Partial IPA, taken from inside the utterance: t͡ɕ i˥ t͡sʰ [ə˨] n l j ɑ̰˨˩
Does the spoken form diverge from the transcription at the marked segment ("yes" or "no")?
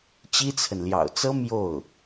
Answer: no